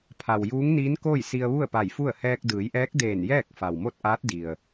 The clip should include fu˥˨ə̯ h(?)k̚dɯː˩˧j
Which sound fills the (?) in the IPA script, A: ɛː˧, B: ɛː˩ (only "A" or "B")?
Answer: A